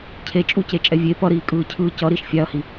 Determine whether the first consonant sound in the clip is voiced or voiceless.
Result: voiceless